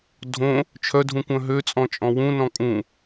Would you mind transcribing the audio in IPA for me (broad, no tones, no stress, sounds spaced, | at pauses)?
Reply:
dʱ õ | t͡ʃʰ œ dʱ ũ kʷ œ̃ ɦ ø t͡sʼ ɔ̃ t͡ʃʼ ɔ̃ w ũ n ɔ̃ kʼ ũ